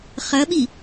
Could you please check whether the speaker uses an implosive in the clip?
yes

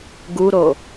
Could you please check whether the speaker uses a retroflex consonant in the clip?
no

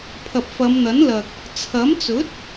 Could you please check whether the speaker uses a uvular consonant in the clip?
no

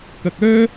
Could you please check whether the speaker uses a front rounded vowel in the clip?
yes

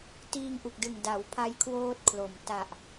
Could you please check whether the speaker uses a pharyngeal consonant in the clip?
no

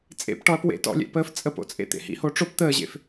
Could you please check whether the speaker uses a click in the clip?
no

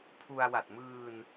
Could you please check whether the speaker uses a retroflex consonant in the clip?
no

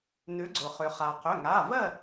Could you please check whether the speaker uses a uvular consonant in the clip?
yes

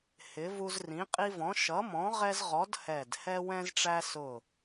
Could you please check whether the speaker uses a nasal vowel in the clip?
yes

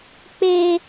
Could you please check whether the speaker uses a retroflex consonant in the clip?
no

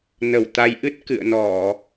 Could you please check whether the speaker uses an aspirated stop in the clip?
no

